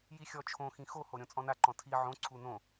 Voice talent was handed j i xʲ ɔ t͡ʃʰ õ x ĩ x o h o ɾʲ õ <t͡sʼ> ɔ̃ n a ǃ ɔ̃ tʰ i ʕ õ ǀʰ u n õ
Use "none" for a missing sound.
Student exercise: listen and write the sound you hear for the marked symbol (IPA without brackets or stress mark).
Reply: t͡sʼ